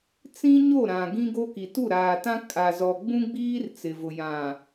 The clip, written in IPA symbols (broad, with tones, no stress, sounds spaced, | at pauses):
t͡s ĩ˦ ɲ o˦˨ ɾ ã˨ ɡ ĩ˦ ɡ o˦ k i˨ t u˦˨ ɾ aː˨ t ã˦ kʼ a˨ z ɔ˨ ɡ͡b ũ˦ ɡ͡b iː˦ r t͡s ɪ˨ v ʊ˨ j ã˨